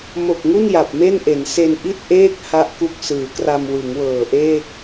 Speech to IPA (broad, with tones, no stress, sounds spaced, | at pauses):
m o˨˩ k̚ ŋ u˥˩ n j a˨˩ p̚ m e˥˩ n ʔ e˩˦ n s e˧ n ʔ i˥˩ t̚ ʔ eː˥˩ k̚ h a˥˩ ʔ k u˥˩ k̚ s ɯː˩˦ k r a˧ m w ɯ˩˦ ŋ w ɤː˨˩ ʔ eː˥˩ k̚